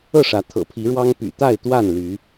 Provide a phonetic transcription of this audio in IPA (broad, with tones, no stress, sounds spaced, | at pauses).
ɤ˥˨ ʂ ä˨˦ t̪ʰ ɤ̰˨˩ pʰ i˨˦ ɻ w ɑ˦ ŋ p y̰˨˩ t̪ a˥˨ ɪ̯ t̪ w a˥˨ n l y˨˦